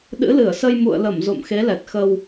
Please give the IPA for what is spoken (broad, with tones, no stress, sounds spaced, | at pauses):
ɗ ɨ̰˧˥ l ɨ˧˩ ə̯ s ə˧ j m ṵ˧˨ ə̯ l ə˧˩ m z o̰˧˨ m x e˨˦ l ɛ˨˩ t̚ x ə˧ w